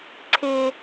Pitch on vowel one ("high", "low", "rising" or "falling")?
high